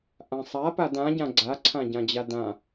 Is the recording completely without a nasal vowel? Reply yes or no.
no